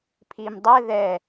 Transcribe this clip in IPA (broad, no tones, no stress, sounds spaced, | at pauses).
pʰ i m dˤ ɛ ð ɛ